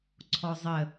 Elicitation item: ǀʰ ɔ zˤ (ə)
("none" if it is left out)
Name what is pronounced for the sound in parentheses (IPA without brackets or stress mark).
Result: ə